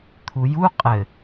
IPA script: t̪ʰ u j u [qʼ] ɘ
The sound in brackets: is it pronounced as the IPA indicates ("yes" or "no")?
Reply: yes